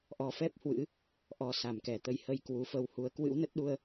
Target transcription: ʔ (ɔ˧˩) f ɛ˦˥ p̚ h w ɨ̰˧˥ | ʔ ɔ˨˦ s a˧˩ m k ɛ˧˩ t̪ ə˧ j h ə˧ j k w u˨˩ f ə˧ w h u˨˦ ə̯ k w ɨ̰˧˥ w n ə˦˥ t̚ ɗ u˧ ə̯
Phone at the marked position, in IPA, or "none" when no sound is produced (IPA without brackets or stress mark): ɔ˨˦